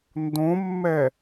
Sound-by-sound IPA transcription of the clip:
ndõmːɛ

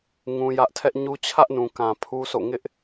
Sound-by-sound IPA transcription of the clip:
ŋũ˦jä˦ʔ tʰɛ˦ʔɲu˦ t͡ɕʰä˦ʔnũ˨kã˨ pʰu˦sʰo̰˦˨ ŋɪ˦ʔ

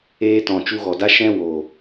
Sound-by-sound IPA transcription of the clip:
eː˧tɔ̃˨ t͡ʃu˧ɣɔ˨da˦ ʃɛ̃˦wo˨

